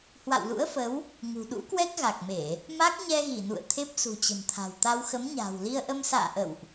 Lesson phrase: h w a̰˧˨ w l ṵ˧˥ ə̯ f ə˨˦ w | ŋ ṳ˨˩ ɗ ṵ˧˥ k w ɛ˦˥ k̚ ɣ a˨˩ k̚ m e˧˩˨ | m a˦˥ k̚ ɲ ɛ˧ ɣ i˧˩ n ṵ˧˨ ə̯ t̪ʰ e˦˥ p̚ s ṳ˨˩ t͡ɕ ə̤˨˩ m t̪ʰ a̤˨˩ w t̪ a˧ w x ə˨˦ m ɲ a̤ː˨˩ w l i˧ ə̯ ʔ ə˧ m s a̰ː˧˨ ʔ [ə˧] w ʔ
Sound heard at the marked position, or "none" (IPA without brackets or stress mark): ə̰˧˨